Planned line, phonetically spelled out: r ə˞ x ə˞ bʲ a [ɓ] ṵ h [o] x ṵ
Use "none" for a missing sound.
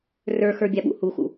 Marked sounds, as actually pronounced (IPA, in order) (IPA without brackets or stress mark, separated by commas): ɓ, u